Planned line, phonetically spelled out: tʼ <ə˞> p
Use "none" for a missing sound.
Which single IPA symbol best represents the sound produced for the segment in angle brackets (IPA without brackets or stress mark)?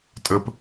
ə